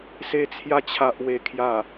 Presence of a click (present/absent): absent